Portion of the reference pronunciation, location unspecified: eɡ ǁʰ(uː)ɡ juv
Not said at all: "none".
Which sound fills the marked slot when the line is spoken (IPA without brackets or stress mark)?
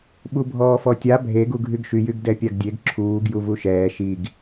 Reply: uː